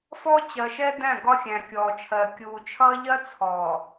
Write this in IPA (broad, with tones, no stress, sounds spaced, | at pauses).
f ɔ˦ t͡ɕ ɜ˨ ʃ ɛ˦ d æ̃˦˨ ɡ ɒ˦ xʲ æ̃˨ kʲ ɔː˨ t͡ʃʰ ɜ˨ kʲ uː˨ t͡ʃʰ ʌː˦ ʎ ɜ˦ t͡sʰ ɔː˨